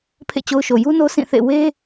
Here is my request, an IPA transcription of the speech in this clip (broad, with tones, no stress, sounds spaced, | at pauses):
pʰ ḛ˦˨ t͡ɕ o˦ ʊ̯ ʃ o˨ j u˦ n o˦ sʰ ĩ˦˨ θ ḛ˦˨ w e˦